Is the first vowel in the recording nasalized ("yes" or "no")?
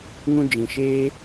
yes